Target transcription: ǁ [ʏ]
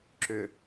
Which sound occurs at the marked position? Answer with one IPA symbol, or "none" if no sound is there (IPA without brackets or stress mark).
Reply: ʏ